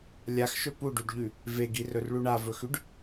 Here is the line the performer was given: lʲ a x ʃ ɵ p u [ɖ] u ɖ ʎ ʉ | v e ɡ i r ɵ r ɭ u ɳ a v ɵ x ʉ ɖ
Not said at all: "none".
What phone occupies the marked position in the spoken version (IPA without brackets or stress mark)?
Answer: ɖ